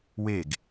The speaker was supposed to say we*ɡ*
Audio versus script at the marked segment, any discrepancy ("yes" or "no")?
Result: no